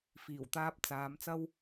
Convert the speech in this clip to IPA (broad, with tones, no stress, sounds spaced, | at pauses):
f iː˨˩ w t̪ aː˧ p̚ t͡s aː˨˧ m t͡s ɐ˥ w